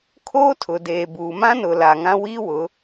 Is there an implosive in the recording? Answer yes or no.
no